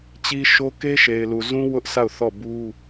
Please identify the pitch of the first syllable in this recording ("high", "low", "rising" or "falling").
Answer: high